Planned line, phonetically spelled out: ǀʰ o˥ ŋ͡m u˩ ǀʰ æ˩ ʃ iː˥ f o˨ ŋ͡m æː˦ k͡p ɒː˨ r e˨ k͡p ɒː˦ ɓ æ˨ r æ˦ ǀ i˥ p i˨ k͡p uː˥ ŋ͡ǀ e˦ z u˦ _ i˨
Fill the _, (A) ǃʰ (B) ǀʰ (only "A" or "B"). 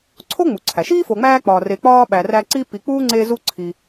B